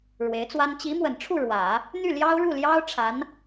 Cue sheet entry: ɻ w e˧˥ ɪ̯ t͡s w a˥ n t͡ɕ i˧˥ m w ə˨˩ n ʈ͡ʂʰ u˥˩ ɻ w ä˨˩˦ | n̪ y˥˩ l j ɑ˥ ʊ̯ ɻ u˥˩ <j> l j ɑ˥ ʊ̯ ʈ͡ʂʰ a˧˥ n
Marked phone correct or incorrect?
incorrect